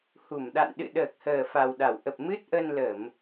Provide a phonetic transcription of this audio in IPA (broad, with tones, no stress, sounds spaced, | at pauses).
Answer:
h u˧˩ m ɗ a̰˧˨ n ɗ ɨ̰˧˨ ɗ əː˨˩ k̚ h əː˨˩ f a˨˩ w ɗ a˧˩ w ʔ ə˨˩ p̚ m ɨ˦˥ t̚ ʔ ə˧ n l ə˧˩˨ m